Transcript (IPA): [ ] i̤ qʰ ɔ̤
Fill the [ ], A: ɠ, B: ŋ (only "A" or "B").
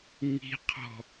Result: B